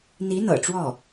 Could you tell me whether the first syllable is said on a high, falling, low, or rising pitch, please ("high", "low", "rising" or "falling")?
rising